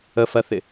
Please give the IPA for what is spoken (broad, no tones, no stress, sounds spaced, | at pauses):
ə f ɜ θ ɪ